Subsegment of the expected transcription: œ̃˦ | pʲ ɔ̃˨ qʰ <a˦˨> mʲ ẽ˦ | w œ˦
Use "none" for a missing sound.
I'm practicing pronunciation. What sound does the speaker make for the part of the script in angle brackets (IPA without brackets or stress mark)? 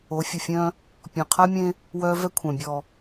a˦